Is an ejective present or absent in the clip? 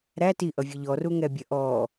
absent